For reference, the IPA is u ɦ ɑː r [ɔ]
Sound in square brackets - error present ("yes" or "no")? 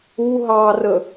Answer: yes